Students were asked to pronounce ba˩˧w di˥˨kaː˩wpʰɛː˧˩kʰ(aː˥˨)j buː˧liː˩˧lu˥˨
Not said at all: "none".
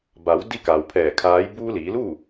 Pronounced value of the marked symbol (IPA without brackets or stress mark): aː˧˥